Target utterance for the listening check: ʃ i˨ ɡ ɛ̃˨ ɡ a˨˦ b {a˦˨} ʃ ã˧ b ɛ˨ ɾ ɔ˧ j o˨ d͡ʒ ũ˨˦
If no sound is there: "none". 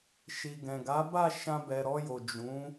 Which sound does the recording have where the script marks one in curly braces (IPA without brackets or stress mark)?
a˦˨